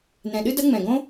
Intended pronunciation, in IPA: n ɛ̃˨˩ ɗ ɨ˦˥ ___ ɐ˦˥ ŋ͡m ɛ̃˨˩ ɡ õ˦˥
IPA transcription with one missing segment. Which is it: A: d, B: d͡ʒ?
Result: A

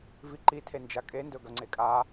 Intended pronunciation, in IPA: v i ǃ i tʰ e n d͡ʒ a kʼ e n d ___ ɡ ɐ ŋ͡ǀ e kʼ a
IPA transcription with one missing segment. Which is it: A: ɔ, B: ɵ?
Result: B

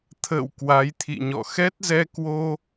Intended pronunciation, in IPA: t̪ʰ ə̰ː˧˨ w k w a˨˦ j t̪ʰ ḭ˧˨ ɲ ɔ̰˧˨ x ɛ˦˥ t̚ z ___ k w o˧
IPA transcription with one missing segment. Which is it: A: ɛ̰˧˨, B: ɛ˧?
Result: B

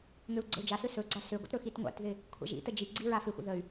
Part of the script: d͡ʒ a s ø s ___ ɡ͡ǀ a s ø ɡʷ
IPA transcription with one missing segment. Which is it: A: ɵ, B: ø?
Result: A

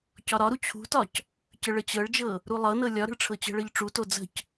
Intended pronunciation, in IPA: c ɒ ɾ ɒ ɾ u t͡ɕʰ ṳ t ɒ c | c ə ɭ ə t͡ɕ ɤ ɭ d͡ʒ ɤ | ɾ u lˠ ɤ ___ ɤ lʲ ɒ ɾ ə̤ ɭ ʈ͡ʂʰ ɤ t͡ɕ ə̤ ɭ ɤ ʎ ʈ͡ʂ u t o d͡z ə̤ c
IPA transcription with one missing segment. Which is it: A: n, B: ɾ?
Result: A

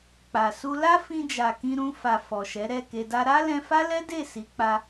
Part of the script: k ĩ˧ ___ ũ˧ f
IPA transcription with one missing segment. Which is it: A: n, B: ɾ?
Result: B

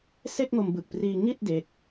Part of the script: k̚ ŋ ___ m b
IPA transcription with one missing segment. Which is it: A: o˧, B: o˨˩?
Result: A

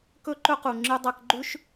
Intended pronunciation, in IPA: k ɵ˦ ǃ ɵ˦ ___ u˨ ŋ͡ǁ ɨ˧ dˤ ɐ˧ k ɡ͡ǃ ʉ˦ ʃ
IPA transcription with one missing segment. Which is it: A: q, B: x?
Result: A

